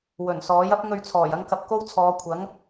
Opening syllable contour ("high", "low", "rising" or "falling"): low